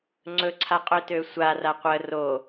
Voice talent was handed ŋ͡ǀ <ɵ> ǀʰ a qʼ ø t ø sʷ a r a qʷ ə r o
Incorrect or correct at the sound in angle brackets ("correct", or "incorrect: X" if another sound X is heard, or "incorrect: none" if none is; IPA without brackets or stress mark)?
correct